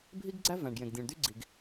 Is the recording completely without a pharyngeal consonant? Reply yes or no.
yes